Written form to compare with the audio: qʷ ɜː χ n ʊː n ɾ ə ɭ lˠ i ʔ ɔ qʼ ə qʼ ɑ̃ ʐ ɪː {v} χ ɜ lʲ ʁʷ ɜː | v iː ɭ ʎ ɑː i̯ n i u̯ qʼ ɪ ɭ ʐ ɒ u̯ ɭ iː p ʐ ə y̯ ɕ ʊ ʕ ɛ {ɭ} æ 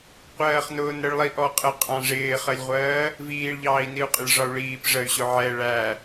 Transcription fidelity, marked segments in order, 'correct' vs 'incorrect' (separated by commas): incorrect, correct